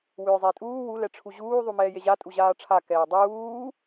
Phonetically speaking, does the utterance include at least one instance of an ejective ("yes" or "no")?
yes